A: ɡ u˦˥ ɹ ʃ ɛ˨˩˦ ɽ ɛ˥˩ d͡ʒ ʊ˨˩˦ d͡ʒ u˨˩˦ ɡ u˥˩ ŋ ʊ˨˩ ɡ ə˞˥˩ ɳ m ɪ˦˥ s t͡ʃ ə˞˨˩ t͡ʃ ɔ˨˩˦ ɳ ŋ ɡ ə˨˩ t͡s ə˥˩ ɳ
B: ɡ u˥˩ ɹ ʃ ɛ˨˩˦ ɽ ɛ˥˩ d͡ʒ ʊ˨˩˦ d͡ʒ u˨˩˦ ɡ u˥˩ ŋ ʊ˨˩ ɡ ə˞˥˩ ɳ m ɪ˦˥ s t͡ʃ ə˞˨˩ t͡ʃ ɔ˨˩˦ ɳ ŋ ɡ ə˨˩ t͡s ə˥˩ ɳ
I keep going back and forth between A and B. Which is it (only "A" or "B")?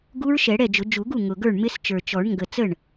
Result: A